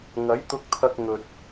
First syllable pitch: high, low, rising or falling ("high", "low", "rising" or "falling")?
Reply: rising